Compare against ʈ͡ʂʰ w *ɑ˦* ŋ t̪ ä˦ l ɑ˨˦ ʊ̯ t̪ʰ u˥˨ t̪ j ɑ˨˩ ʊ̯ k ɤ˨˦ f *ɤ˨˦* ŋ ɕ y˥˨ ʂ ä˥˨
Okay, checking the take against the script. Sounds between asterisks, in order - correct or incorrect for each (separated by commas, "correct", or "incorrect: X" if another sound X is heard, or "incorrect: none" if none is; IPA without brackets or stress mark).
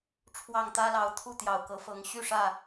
incorrect: ɑ˥˨, correct